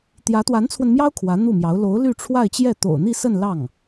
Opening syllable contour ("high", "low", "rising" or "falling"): rising